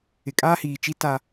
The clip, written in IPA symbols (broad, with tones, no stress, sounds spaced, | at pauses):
ɪ˨ kʼ aː˦ h iː˨ t͡ʃ i˦ t a˦